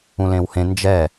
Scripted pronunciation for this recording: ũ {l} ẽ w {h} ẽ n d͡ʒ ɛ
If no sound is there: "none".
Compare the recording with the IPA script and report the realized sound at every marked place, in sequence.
l, h

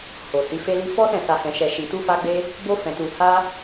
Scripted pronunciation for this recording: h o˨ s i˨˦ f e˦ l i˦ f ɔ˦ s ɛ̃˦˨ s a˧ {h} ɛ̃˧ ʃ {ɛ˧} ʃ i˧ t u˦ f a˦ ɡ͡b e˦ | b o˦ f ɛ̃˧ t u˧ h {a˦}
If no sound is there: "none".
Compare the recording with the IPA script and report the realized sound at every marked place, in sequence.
h, ɛ˧, a˦

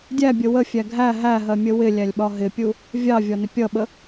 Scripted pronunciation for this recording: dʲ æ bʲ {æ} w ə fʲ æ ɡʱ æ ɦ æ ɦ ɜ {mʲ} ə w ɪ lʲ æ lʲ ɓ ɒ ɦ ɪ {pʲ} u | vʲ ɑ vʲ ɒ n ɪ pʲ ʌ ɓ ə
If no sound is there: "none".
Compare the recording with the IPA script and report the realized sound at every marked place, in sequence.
ə, mʲ, pʲ

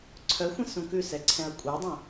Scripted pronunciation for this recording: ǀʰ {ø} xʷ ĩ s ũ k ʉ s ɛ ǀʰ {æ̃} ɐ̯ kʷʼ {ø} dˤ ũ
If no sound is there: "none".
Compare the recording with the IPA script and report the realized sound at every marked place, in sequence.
œ, ɛ̃, ɛ

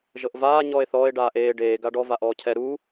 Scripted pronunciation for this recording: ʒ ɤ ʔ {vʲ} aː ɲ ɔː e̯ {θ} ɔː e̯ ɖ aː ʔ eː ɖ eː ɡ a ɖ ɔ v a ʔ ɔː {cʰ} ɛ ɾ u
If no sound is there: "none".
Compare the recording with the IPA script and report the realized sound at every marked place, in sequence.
v, θ, cʰ

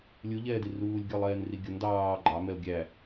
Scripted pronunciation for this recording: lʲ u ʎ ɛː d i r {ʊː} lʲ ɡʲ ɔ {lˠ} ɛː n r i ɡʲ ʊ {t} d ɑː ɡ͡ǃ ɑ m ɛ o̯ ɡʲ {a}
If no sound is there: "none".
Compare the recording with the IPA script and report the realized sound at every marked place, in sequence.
uː, lˠ, n, æ

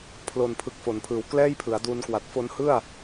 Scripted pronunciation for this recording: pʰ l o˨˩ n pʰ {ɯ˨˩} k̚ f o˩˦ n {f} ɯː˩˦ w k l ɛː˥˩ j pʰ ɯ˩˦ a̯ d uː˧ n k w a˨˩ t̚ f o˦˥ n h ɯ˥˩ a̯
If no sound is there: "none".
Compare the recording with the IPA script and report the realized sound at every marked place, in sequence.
ɯ˨˩, pʰ

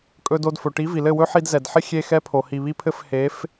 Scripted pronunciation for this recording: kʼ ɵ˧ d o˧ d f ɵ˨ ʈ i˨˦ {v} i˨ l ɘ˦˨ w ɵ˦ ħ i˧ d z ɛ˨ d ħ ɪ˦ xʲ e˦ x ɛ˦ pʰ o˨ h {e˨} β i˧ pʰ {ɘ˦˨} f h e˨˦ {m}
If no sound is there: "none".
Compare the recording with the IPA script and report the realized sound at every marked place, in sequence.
v, i˨, ɘ˦˨, f

